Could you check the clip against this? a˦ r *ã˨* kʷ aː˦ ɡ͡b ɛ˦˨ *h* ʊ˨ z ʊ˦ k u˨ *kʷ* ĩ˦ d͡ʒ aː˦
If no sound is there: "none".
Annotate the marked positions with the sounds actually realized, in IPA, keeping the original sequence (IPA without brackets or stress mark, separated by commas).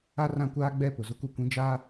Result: ã˦, p, kʷ